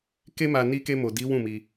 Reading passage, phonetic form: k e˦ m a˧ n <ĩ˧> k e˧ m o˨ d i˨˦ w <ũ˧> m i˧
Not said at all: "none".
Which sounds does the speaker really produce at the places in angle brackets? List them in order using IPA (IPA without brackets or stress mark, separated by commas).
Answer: i˧, ũ˦˨